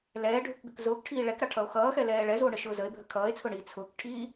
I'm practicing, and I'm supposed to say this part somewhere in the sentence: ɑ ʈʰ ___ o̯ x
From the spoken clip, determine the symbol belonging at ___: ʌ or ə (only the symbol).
ʌ